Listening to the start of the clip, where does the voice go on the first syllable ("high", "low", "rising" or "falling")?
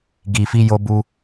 low